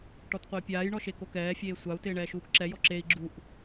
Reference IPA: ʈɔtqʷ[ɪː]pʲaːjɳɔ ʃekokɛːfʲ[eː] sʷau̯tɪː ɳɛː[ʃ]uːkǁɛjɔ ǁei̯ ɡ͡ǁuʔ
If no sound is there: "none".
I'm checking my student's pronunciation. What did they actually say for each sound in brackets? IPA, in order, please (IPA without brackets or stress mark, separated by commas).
ɪː, eː, ʃ